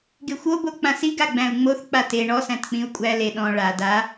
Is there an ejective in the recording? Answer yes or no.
yes